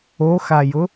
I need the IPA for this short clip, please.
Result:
o x a j ʊ

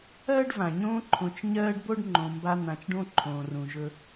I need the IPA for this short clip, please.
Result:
ɜː˥ ɖ v ã˩ ɲ õː˦ ǃʰ õ˨ t͡ʃ ɲ ɜː˦ ɖ b o˥ ɖ ŋ͡ǃ õ˨ m b a˦ n̪ ã˨ t͡ʃ ɖ õ˥ ǃʰ õː˨ r ũ˨ ʒ ɵ˦

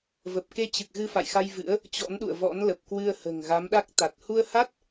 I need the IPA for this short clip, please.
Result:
v ə˨˩ p̚ k e˧ t͡ɕ ɨ˨˩ k̚ ɣ ɨ˧ f a̰˧˨ j x a˧ j v ɨ̰˧˥ ə̯ | t͡ɕ ɔ̰˧˥ n ɗ ṵ˧˨ ə̯ v ɔ̰˧˥ n l ə˨˩ p̚ k w ɨ˧ ə̯ h ə̤ː˨˩ ŋ ɣ a˨˦ m ɗ a˦˥ k̚ t̪ a˨˩ t̚ h u˧ ə̯ h a˦˥ t̚

